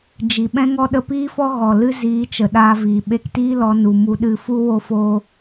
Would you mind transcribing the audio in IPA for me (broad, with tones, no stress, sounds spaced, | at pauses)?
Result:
d͡ʒ i˨ ɓ ɛ̃˦ ŋ ɔ˦ ɗ ə˧ p iː˦ f ɔ˦ ɣ ɔ˨ l ɨ˦ z iː˨˦ t͡ʃ ə˨ ɗ aː˧ v iː˨ ɓ e˧ k t iː˦ l ɔ˧ n u˨ m u˧ ɗ ɨ˧ f u˦ w o˦ f o˦